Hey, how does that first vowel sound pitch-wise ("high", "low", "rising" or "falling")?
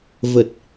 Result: low